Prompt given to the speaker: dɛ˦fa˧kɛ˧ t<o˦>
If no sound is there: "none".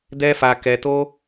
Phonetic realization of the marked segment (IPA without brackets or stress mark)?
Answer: o˦